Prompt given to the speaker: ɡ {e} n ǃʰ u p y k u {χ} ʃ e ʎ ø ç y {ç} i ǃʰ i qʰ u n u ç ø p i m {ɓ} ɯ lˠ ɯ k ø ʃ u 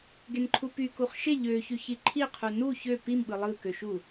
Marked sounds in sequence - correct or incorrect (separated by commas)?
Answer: correct, correct, correct, correct